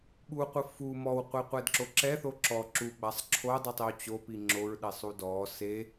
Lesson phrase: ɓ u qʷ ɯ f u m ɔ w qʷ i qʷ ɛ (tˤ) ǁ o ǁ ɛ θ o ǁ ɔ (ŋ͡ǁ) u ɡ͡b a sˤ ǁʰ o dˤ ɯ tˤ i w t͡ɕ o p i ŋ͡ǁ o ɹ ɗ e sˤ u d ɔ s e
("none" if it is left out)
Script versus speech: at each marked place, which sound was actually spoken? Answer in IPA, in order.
d, ǁ

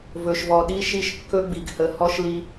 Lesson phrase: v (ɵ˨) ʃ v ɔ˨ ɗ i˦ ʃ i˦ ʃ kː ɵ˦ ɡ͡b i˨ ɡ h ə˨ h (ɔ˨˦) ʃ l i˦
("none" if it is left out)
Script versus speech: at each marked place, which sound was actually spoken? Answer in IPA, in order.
ɵ˨, ɔ˦

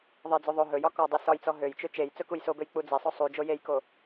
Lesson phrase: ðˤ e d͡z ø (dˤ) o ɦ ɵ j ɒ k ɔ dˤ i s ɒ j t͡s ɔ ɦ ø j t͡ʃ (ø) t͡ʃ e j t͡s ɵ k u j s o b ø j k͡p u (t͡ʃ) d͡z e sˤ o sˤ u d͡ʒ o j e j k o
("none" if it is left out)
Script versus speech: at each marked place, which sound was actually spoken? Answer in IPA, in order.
ðˤ, ø, none

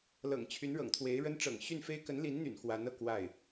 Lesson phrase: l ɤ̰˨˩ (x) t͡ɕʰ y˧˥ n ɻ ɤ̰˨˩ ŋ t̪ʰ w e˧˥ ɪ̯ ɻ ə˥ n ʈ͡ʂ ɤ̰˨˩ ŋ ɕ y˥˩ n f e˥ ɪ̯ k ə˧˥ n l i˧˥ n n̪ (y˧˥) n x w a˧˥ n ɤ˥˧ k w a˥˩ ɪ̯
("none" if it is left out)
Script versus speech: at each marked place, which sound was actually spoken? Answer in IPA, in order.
ŋ, y̰˨˩

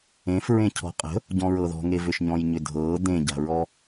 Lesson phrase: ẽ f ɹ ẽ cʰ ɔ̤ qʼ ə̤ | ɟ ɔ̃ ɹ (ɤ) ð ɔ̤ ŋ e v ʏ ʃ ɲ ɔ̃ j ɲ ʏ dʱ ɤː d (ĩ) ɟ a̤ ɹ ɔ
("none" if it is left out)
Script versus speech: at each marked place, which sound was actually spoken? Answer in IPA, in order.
ɤ, ẽ

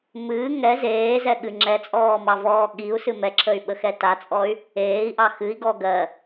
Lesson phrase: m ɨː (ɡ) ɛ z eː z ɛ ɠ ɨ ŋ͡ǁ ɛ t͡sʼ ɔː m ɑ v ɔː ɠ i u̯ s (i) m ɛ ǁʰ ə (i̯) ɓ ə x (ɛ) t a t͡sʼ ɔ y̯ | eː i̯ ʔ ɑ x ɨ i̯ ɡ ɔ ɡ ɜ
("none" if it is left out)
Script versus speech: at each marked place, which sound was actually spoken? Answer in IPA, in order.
ŋ, ɨ, y̯, ɛ

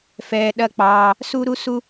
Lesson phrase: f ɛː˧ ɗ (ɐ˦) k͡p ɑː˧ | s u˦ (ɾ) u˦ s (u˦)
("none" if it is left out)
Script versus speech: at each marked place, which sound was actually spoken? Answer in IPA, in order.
ɐ˦, ɾ, u˦

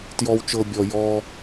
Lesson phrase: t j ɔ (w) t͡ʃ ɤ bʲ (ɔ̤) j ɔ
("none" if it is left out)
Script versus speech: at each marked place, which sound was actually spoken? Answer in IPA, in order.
w, ɔ

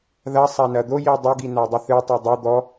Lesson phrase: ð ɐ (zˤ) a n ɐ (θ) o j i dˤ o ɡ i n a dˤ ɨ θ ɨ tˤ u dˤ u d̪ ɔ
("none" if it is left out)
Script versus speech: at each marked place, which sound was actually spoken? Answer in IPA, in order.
sˤ, d̪

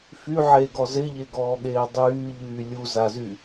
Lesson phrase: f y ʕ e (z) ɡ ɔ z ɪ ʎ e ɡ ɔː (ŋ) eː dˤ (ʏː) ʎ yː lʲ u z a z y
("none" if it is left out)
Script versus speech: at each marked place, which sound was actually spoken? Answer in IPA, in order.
none, ɠ, yː

